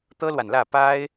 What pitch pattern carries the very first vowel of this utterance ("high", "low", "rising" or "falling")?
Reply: high